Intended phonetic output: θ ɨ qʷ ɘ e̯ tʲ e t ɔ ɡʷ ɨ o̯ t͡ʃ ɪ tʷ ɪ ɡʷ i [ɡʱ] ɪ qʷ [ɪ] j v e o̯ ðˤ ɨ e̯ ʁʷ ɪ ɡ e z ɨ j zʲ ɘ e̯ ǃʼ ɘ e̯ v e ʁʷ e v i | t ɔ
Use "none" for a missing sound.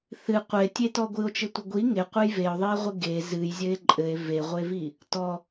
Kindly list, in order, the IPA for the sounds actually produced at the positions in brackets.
ŋ, ɨ

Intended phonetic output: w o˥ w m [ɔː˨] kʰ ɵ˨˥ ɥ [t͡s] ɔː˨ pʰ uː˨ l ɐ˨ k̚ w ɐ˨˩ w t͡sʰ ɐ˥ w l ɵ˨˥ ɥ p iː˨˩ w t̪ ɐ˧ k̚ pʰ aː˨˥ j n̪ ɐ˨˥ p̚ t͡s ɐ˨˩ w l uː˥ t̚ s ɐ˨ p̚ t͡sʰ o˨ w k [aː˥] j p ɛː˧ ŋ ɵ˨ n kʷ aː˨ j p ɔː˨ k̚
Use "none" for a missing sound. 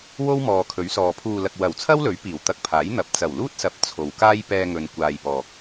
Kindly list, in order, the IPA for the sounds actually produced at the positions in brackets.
ɔː˨, s, aː˥

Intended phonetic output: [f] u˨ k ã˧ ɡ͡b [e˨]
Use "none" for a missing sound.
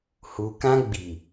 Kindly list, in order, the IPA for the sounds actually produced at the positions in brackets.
h, i˨

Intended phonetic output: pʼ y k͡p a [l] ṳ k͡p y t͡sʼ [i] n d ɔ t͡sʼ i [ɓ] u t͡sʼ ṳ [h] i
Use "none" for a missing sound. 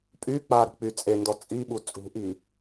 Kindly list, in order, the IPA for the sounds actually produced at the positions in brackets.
ɾ, e, ɓ, ʔ

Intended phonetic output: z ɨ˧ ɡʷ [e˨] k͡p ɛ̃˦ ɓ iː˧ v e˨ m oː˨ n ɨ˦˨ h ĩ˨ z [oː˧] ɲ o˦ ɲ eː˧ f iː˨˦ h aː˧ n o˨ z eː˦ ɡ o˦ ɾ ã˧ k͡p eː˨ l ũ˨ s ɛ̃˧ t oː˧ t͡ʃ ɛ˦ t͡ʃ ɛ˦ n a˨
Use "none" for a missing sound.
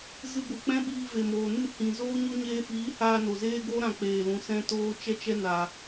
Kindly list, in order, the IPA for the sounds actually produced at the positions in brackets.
ɨ˨, oː˦

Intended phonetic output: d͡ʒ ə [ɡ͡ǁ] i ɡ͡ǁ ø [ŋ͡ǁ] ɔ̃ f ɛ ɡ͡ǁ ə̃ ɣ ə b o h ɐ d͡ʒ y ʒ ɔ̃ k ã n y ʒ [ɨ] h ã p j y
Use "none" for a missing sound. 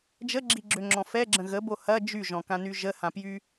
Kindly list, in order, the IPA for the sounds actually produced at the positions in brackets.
ɡ͡ǁ, ŋ͡ǁ, ə

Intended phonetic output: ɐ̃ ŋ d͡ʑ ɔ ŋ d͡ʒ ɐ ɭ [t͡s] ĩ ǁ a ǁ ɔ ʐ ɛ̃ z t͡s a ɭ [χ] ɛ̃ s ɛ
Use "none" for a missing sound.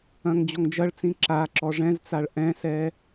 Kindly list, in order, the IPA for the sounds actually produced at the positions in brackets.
t͡s, ʔ

